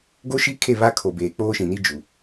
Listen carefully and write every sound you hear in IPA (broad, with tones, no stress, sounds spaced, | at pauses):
ɡ o˦ ʃ i˦ kʰ e˦˨ β a˦ kʰ o˨ b eː˨ k͡p oː˦ ʃ ĩ˨ n i˦ d͡ʒ u˨